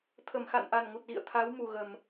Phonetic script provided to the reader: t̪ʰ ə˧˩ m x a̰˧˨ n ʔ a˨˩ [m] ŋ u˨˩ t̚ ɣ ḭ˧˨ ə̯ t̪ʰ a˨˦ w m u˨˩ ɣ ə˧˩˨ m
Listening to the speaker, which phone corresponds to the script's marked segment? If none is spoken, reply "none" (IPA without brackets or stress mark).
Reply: n